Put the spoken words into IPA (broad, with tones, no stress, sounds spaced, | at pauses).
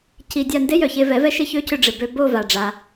c i˧ dʲ a˥˧ n d e˦˥ j œ˩ ç e˧ v ɛ˨˩˦ v ɛ˦˥ ʃ ɪ˦˥ ç ø˦˥ c ʏ˧ ɖ͡ʐ ɪ˩ b ø˧ b o˥˧ v a˩ ɖ͡ʐ a˩